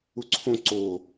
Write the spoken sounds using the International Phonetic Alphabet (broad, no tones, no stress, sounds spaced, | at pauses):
u ǀʰ õ ǀ o